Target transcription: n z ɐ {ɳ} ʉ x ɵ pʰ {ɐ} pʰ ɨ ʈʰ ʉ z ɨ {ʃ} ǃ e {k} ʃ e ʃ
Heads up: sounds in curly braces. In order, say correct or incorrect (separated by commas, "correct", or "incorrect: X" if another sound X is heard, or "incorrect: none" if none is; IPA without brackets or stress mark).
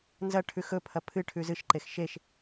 incorrect: ʈʰ, correct, correct, incorrect: x